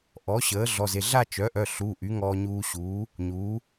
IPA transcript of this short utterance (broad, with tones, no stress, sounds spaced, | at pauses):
ʔ ɔ˩˥ ɕ əː˩˥ ɮ ɔ˩˧˩ z e˩˧˩ ɮ a˥˧ t͡ʃ œ˩˥ ʔ œ˩˧˩ ɬ u˩˧˩ ʔ y˩˥ ŋ ɔː˧ ɲ uː˧ ɕ uː˩˥ | ɲ uː˩˥